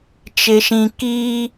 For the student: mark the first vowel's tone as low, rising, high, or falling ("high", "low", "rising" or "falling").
low